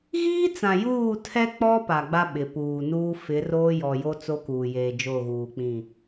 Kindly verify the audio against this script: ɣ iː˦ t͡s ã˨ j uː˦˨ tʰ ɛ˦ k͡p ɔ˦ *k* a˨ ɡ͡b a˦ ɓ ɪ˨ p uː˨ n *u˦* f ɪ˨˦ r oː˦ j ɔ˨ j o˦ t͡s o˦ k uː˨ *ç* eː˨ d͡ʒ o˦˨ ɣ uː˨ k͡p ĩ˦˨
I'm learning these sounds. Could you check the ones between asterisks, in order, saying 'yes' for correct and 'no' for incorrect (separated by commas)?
no, no, no